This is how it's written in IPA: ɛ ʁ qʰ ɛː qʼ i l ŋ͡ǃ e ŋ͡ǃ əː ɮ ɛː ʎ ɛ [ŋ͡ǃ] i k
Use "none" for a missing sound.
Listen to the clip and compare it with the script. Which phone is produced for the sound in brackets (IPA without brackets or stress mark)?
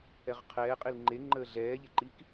ǃ